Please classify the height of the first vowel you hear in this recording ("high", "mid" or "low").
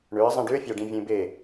mid